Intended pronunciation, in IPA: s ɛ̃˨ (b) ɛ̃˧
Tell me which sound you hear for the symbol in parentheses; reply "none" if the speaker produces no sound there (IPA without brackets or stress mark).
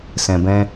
b